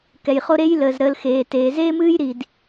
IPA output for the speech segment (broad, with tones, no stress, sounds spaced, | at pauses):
k ɛ˩ j χ o˦ ɾ e˥ j l əː˩ z ɾ əː˨ l x eː˩ t eː˩ z eː˥ m ɨː˥ j ɾ i˩ d